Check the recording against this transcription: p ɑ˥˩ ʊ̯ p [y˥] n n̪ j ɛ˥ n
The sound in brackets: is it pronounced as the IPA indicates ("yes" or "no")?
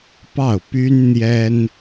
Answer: yes